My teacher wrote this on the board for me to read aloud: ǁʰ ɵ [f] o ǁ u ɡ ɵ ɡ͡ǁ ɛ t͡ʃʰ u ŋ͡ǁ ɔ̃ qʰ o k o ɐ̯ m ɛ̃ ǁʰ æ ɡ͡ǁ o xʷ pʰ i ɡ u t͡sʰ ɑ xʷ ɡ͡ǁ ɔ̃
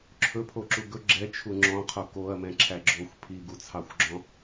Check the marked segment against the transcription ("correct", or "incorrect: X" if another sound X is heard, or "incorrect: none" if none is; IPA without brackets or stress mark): incorrect: pʰ